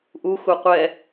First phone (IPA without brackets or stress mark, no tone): ʔ